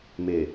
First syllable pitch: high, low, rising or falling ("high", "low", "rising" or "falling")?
low